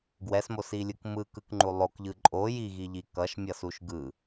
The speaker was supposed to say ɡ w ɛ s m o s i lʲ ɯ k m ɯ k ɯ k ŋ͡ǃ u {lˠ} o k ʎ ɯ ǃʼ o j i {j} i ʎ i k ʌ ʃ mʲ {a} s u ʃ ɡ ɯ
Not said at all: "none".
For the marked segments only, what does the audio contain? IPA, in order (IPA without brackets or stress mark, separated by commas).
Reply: lˠ, ɣ, ʌ